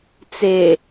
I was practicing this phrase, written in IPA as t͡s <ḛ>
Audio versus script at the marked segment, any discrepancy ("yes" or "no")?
yes